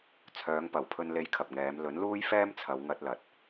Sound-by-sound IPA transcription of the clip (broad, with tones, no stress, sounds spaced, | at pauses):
t͡sʰ œː˨˧ ŋ p ɐ˨˩ w pʰ ɵ˧ n l e˧ j kʰ ɐ˨ p̚ ŋ ɛː˨˧ m l ɵ˨˥ n l uː˥ j f ɛː˥ m t͡sʰ ɐ˨˧ w ŋ ɐ˧ t̚ l ɐ˨ t̚